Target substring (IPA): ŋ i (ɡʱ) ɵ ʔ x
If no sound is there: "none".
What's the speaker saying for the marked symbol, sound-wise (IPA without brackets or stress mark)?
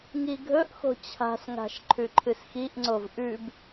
ɡʱ